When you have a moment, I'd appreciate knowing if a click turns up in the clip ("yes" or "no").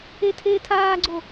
yes